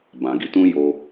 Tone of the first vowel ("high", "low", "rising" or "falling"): low